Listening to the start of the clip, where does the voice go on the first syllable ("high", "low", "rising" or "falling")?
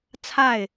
falling